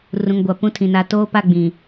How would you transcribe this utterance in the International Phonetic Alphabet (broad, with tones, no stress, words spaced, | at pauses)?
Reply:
rũ˨ŋɡʷa˨ pũ˦tʰĩ˨na˦ toː˦pa˦˨ ɡ͡bĩ˨